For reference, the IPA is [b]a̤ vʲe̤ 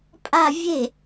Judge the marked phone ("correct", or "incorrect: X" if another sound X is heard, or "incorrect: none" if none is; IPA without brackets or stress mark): incorrect: pʼ